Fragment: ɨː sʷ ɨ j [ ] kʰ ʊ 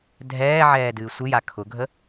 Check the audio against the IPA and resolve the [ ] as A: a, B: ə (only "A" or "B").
A